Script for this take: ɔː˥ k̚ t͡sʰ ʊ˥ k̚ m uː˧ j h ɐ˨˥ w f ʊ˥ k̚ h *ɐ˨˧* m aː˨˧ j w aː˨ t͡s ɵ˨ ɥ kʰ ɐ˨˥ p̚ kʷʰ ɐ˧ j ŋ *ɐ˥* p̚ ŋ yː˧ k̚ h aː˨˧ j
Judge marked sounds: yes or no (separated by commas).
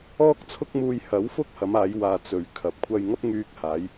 yes, yes